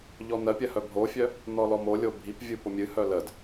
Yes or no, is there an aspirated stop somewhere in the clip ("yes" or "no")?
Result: no